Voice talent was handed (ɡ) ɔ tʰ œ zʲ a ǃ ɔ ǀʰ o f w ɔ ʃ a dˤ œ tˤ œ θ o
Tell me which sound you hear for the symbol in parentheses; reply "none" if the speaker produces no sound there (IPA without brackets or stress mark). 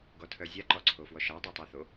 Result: ɡ